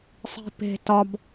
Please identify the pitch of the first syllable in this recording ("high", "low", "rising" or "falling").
high